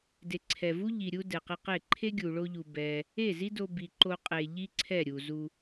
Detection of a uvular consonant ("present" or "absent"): present